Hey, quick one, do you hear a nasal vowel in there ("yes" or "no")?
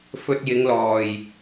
no